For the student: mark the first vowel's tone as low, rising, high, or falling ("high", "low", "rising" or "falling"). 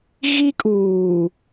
high